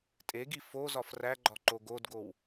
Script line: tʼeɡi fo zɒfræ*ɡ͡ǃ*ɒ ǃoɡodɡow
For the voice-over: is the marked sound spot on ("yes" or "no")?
yes